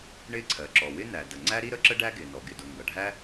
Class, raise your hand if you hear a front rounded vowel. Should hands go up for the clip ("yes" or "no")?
no